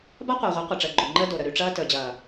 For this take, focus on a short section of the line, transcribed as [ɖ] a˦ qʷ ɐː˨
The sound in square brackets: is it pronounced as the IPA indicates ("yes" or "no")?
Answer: no